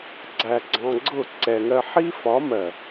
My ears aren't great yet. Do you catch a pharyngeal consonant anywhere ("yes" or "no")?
yes